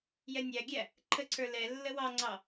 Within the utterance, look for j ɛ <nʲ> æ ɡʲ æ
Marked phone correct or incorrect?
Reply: correct